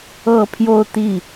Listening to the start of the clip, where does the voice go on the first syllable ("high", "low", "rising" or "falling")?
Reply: falling